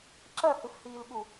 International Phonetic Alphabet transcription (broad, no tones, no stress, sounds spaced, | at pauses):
ǁ ɐ h ɨ f h iː l ɠ u